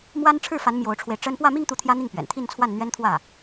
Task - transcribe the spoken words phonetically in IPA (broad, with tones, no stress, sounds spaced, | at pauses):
m w a˥ n ʈ͡ʂʰ ɻ̩˥˩ f a˧˥ n m j o˧˥ ʊ̯ ʈ͡ʂʰ w e˧ ɪ̯ ʈ͡ʂ ə˥ n p w ä˥˧ m i˥˧ ŋ t̪ u˥˩ t̪ʰ j ä˥ n̪ i˥˩ ŋ p ɥ ɛ̰˨˩ n t̪ʰ i˥˧ n t͡sʰ w a˥˩ n n̪ ɥ ɛ˥ n t̪ʰ w ä˥˩